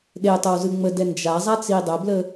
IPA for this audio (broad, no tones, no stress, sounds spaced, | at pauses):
ɗ e tˤ ə w z ɯ ŋ͡m ə d ɛ n d͡ʒ a zˤ a t͡s i dˤ ə b l ə